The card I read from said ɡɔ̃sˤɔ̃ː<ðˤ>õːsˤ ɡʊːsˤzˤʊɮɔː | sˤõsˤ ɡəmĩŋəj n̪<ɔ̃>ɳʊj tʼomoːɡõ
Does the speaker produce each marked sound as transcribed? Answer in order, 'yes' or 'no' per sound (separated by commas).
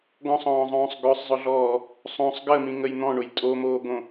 no, yes